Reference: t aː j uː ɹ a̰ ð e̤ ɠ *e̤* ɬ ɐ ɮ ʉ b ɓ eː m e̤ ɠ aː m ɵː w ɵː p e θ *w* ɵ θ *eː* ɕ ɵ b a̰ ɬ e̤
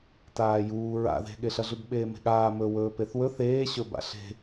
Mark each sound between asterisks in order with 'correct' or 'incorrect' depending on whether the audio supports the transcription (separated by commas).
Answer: incorrect, correct, correct